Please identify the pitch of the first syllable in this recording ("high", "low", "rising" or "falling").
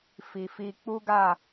low